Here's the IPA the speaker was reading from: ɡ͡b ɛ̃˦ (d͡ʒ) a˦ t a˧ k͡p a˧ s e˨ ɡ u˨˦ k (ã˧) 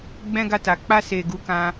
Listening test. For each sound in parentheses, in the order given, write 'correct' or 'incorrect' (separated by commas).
incorrect, correct